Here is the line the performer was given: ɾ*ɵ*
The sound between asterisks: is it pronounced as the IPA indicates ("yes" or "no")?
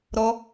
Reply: no